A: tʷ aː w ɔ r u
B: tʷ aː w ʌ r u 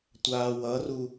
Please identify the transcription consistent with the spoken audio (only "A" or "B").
B